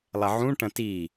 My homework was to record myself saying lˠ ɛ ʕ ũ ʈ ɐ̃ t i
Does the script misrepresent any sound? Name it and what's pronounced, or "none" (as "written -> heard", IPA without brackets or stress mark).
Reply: none